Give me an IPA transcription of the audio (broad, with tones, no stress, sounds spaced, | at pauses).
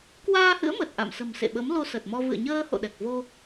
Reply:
k w aː˧ h ɨ̰˧˥ ə̯ m ə˨˩ t̚ ʔ a̰˧˨ m s ə̤˨˩ m s ḛ˧˨ ɓ ə˨˦ m l o˧ s ə˨˩ t̚ m ɔ˧ v ɨ̰˧˨ ə̯ ɲ əː˧ h o̰˧˨ ɗ ɛ˨˩ k̚ v o˧